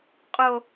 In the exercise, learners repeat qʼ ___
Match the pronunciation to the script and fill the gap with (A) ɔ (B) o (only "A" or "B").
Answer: B